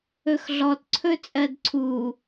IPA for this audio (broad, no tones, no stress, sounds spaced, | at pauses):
ɵ x ɮ ɔ t ǀʰ ɵ t͡sʼ ɜ d ǀʰ u